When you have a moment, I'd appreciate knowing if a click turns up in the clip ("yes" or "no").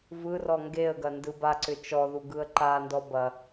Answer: yes